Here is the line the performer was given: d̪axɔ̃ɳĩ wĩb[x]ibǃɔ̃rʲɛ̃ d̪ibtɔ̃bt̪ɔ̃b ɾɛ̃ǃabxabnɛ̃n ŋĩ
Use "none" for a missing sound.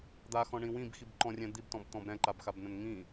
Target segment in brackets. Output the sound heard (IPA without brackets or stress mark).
x